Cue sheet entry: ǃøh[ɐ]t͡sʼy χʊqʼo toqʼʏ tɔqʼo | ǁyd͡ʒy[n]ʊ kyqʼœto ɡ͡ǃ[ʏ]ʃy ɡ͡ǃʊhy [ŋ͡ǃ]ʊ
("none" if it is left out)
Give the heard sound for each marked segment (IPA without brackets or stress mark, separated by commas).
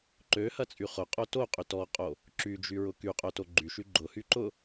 ɐ, ɹ, y, ǃ